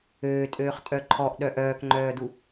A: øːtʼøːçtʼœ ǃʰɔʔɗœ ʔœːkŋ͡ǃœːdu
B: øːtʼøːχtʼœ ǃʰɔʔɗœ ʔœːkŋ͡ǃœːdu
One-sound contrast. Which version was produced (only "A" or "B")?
B